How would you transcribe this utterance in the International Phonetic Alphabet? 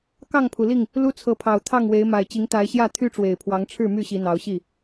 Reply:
k ɑ˥˨ ŋ pʰ u˩ l i˥˨ ŋ | l u˦ t͡sʰ ɤ˨˦ pʰ ɑ˨˩ ʊ̯ t̪ʰ ɑ˥˨ ŋ w e˨˦ ɪ̯ m a˨˩ ɪ̯ t͡ɕ i˨˦ ŋ t̪ a˨˦ ɪ̯ ɕ j ä˥˨ t̪ʰ y˦ ʈ͡ʂ w e˨˩ ɪ̯ pʰ w ɑ˨˦ ŋ ʈ͡ʂʰ ɻ̩˥˨ m y˥˨ ɕ i˨˦ n̪ ɑ˨˦ ʊ̯ ɕ i˥˨

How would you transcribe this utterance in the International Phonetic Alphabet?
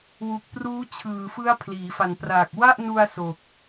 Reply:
w u˨˩ k̚ p r uː˦˥ t͡ɕʰ ɯː˨˩ f ɯ˦˥ a̯ pʰ l iː˩˦ f a˨˩ n p r a˨˩ k̚ w a˥˩ ʔ n u˧ a̯ s o˨˩ k̚

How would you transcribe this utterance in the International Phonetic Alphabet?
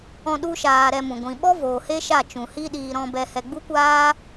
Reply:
ɔ̃˧ ɗ u˦ ʃ aː˧ ɾ ɛ˧ m ũ˨ ɡʷ ĩ˨ ɓ ɔ˦ v oː˨ h e˦ ʃ a˦˨ t͡ʃ ũ˨ h i˦ ɗ iː˧ ɾ ɔ̃˧ b ɛ˧ h ɛ˧ ɡ͡b u˦ kʷ aː˦

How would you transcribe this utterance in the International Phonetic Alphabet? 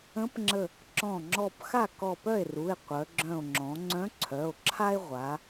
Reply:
ə̃˧˥ p ŋ͡ǁ ə˧˩ | ǁ ɔ̃˧˩ ŋ͡ǁ ɔ˧˩ p x a˥˩ k ɔ˧˩ p œ˥˩ e̯ r u˩˧˩ e̯ qʷ œ˩˧ ɡ͡ǁ œ̃˧˩ o̯ ŋ͡ǁ ɔ̃˩˧ ŋ͡ǀ œ̃˧˥ ǀʰ œ˩˧˩ o̯ ǁʰ a˥ e̯ ʁʷ a˩˧

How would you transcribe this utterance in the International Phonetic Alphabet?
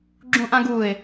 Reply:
ɡ͡ǁ ũ ʔ ã ɡ u ɪ̯

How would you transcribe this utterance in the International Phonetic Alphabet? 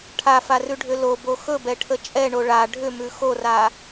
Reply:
ʈʰ a f a r ʉ ɖʱ ʏ l o b o x ɵ b ɛ ʈʰ ə t͡ʃʼ ɛ ɳ o ɭ a ɖʱ ʏ m ʉ x o r a

